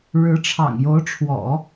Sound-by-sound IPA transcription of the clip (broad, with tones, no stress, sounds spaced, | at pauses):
ɻ ɻ̩˧˥ ʈ͡ʂʰ ɑ̰˨˩ ŋ j o˧˥ ʊ̯ ʈ͡ʂʰ w ɔ̰˨˩˦